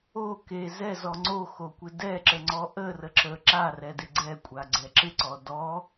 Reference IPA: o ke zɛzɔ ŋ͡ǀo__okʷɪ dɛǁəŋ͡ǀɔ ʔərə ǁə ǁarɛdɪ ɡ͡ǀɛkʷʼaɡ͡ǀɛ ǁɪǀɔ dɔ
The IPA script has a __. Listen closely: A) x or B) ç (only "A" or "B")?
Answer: A